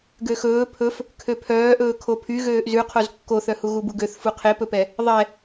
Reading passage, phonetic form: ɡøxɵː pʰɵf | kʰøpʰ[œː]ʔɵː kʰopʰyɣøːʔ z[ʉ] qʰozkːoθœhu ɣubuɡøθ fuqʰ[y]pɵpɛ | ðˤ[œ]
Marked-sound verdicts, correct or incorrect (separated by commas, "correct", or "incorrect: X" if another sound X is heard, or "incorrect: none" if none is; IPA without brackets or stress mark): correct, correct, incorrect: e, incorrect: ɛ